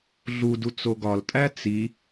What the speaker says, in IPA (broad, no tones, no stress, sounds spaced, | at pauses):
ɮ u d u t͡s o ɡ ɒ l tʼ æ t͡s i